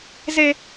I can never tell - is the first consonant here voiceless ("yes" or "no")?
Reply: no